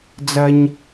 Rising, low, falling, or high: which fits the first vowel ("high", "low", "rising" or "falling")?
high